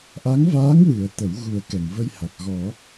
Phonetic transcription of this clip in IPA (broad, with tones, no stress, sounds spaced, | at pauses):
ʔ a˧˥ ŋ v aː˧˥ ŋ w ɨ˨˩˦ ə̯ t̪ ə˨˩˦ w ɣ u˨˩˦ ə̯ k ɛ˨˩˨ ŋ v ə˧ j h a˨˩ k̚ ɣ ɔ˨˩˦